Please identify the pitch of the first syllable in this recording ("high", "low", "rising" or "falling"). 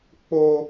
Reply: high